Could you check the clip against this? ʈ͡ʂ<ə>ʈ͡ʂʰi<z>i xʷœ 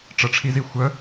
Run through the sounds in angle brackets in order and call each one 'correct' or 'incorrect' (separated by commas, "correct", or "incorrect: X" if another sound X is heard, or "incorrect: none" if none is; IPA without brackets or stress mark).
correct, correct